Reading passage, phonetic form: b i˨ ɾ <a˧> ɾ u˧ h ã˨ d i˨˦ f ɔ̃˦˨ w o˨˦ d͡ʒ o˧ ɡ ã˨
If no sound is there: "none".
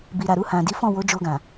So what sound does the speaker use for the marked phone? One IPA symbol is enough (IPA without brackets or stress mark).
a˨